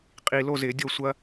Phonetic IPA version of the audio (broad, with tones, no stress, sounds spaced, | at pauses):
qʼ i˨ l o˥˨ z ɪ˨˩˦ dʲ o˥˨ sʷ ɐ˥